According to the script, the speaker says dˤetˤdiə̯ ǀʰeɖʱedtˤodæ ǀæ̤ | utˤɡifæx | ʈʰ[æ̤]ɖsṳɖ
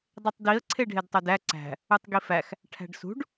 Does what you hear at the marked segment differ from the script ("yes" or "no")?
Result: no